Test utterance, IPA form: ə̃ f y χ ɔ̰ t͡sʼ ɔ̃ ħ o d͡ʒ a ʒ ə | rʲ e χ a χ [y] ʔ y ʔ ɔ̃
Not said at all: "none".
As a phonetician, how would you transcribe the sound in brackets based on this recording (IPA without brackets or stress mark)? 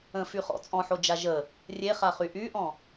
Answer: y